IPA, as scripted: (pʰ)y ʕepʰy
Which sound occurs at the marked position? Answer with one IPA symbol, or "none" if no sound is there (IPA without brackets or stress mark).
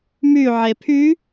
m